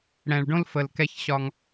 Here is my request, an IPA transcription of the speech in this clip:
ɽɛ̃˨ɭɖõ˦l fə˨l kɛ˦çɕɒ˦ŋ

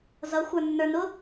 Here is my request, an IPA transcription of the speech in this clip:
zʌxʷə˞nːə˞nʊ

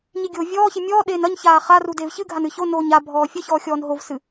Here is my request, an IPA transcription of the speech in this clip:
ɲiɡʲoːvʲɔːçi mʲɔːɗeːn ɐɲçaː χaru deːvçɨɡʱan ɨçonoːɲ abʱɔː fʲɐçɔː xʲɔːnɦovsɨ

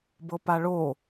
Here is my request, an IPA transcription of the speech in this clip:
bɤpaɭo

